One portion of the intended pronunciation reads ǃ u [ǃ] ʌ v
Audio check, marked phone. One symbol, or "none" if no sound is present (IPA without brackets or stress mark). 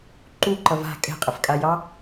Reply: ǃ